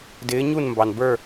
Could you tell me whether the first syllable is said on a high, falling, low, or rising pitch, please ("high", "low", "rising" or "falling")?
rising